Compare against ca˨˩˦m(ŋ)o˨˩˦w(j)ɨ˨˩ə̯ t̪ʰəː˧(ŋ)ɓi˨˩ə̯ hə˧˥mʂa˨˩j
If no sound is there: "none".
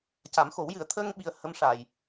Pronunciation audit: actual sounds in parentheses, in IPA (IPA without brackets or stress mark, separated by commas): x, j, ŋ